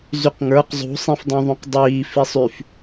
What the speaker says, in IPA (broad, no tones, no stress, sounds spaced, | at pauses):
z y q ŋ ə˞ q zˤ ṳ sˤ ĩ f dˤ õ ðˤ ũ q dˤ iː f i sˤ y f